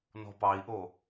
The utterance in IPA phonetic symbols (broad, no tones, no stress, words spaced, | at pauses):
nɔ̤pɑi̯ʔo